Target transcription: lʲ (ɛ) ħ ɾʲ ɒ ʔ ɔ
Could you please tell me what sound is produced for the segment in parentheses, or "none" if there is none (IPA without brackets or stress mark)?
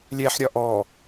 ɛ